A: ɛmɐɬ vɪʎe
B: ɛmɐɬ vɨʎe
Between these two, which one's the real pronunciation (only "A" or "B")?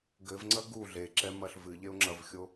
B